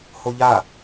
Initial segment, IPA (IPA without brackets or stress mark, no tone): h